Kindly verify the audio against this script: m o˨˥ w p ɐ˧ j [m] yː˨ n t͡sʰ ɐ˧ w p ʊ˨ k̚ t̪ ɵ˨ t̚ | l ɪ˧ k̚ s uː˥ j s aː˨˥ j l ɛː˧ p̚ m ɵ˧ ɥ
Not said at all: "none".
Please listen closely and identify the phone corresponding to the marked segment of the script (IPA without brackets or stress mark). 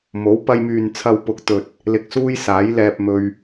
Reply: m